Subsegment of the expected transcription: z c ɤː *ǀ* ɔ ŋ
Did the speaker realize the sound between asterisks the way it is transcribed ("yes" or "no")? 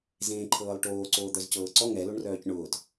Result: yes